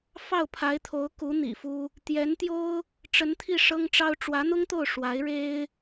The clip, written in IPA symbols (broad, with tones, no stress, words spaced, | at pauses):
fɑ˥˩ʊ̯pʰa˧˥ɪ̯t̪ʰo˧˥ʊ̯ku˧˥ n̪ḭ˨˩fu˥ | t̪jɛ˧˥nt̪jo˥ʊ̯ | ʈ͡ʂə˧˥nt̪ʰi˥˩ ʂɤ˥ŋʈ͡ʂɑ˥ʊ̯ ʈ͡ʂwä˧˥n̪ʊ˥ŋt̪o˥˩ʊ̯ ʂwa˧˥ɪ̯ ɻe˥ɪ̯